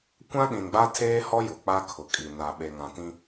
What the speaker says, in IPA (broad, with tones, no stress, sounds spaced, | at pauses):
kʷ ã˦ ɗ ĩ˨ n ɡ͡b a˦ tʰ eː˦ h ɔ˦ j ʊ˨ k͡p a˦ kʰ ʊ˨ kʼ i˨ n a˨ ɓ e˨ ŋ ã˨ t ĩ˦